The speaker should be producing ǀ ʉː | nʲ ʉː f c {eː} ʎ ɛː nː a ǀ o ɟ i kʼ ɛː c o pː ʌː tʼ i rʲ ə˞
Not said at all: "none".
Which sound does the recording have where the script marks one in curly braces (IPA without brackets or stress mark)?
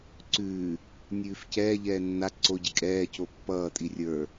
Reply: ɛː